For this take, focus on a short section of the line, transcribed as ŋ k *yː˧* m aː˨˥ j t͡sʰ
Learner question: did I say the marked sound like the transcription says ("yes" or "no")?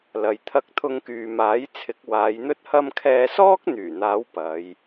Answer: yes